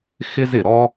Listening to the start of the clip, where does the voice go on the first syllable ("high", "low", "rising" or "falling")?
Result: high